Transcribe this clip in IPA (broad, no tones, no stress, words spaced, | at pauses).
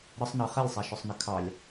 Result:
ɾəsˤnɑ χɛlʲsˤæʃʊsˤnə kʰɑlʲ